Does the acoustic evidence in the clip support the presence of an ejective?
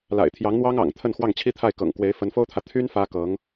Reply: no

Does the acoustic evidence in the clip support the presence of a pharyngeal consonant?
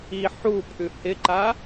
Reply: yes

